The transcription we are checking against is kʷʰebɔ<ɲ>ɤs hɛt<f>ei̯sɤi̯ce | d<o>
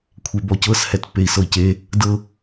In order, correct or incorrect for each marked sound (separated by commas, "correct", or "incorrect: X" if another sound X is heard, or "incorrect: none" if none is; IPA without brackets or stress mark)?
incorrect: c, incorrect: pː, incorrect: ɤ